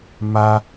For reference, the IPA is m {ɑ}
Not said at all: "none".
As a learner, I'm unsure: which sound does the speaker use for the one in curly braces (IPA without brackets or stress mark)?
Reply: a